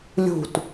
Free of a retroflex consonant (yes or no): yes